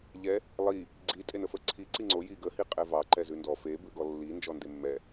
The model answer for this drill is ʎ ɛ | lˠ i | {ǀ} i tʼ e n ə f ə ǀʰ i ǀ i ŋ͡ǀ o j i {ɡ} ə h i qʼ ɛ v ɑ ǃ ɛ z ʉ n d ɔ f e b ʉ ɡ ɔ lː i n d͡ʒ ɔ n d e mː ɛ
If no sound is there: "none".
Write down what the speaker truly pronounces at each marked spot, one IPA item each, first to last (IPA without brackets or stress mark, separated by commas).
ɡ͡ǀ, ɡ